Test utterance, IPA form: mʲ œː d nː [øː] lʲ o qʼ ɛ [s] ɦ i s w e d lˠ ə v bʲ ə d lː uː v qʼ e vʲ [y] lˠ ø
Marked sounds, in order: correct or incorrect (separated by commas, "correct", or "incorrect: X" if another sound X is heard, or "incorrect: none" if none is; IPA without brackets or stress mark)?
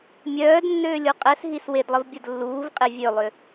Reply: correct, correct, incorrect: ø